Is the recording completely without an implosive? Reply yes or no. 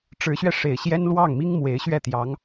yes